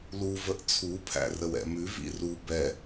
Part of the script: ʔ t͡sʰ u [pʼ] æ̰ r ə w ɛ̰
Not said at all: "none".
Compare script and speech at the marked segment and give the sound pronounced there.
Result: pʰ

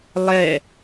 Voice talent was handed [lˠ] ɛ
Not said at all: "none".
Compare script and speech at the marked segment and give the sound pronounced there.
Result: lˠ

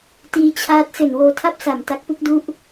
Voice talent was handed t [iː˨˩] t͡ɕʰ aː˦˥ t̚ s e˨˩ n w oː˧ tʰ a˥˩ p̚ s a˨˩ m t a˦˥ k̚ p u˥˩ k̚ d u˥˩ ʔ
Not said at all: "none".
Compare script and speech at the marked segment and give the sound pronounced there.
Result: iː˦˥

